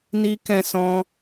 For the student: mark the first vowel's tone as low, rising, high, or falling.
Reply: high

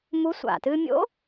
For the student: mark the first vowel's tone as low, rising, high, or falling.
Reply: rising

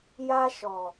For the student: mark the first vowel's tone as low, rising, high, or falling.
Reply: high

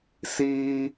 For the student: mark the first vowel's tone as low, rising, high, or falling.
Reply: high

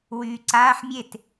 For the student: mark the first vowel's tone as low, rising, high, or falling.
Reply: low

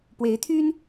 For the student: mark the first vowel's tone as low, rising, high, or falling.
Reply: rising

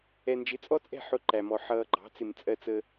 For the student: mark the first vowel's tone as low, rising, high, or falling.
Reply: low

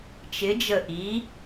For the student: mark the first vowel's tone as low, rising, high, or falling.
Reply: rising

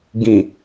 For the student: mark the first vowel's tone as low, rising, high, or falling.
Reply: low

